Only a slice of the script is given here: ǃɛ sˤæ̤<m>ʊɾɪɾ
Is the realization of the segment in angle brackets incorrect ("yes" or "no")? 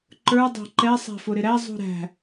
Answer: yes